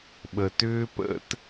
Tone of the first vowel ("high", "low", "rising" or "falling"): low